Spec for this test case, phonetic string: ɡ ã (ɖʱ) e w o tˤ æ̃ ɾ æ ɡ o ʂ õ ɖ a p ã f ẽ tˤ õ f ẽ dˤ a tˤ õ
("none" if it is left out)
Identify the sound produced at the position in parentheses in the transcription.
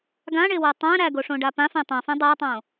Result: ɳ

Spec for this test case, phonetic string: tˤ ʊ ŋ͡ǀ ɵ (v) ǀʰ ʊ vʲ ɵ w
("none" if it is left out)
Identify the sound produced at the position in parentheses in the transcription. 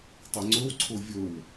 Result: w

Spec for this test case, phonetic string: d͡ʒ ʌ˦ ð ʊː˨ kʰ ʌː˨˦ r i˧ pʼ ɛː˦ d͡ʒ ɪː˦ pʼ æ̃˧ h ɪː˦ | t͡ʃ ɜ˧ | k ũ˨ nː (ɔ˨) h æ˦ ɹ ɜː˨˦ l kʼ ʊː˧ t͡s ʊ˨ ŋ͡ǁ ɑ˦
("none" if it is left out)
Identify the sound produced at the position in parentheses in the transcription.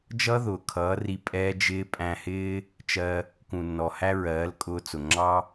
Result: ɔ˨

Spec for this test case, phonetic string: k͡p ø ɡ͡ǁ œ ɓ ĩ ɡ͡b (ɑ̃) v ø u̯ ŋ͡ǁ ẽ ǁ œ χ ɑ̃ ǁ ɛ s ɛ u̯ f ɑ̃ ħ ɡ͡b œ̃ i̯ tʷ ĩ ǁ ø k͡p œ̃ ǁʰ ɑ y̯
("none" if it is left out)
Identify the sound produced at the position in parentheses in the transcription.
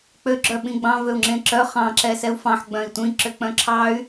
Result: ɑ̃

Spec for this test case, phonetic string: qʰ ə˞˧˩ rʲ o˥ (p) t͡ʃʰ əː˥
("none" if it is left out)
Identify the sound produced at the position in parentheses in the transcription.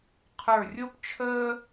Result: p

